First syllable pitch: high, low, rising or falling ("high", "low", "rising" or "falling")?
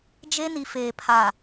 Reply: high